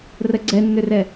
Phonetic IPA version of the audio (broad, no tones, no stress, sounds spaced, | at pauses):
r ə ɡ͡ǀ ɛ nː ʏ r ɛ